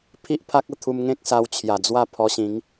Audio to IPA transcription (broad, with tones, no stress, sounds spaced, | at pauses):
pʰ i˦ ʔ pʰ a˦ k̚ ə˧ t̪ʰ u˧ m ŋ ẽ˦ k̚ s a˧ w t͡ɕʰ j a˨˩ d͡z w a˥˧ pʰ ɔ˧ ɕ ĩ˨˦ ŋ